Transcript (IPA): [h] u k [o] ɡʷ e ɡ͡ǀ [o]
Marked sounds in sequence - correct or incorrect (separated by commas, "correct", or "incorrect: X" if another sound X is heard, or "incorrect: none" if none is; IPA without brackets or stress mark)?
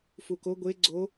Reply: incorrect: f, correct, correct